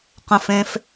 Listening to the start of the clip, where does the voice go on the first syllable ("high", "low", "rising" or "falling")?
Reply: high